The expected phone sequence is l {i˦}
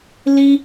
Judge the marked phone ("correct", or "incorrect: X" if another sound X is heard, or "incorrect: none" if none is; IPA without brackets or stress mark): correct